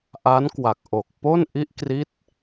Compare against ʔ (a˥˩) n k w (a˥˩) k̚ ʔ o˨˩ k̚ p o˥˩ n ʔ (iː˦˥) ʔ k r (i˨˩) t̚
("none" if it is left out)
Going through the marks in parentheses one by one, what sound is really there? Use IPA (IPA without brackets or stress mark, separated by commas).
a˦˥, a˨˩, i˦˥, i˦˥